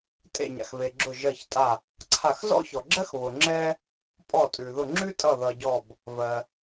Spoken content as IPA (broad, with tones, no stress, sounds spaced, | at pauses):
tʼ ḛ˧˩ ɲ a̰˩ x v e˩ ɡ͡ǁ ʊ˧˩ ʒ ɜ˧˩ ç tʼ a˧˩ | ǀʰ a˧˩ x z ɔ̰˥ ç ɔ˩ ɡ͡ǁ ɜ˥ x β ʊ˩ ŋ͡ǁ ɛ˥ | pʼ ɔ˧˩ tʼ ʉ˩ ð ʊ˧˩ ŋ͡ǁ ʉ˥ tʼ ʌ˧˩ ð ʌ˩ ɟ ɔ˧˩ b | v ɜ˩